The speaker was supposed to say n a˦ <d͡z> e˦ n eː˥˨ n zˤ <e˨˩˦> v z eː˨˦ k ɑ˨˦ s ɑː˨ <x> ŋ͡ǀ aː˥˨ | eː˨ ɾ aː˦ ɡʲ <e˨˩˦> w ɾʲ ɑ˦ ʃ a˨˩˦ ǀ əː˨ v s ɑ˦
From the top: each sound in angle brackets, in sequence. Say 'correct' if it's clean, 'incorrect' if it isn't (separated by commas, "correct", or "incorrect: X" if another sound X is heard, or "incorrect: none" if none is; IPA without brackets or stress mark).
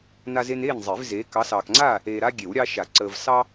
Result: incorrect: z, correct, incorrect: k, correct